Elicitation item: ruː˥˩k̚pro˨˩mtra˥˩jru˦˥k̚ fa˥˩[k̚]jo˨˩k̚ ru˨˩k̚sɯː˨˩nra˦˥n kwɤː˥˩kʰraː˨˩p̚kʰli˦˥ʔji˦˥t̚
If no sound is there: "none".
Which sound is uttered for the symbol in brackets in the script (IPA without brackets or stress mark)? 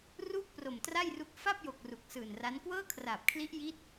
p̚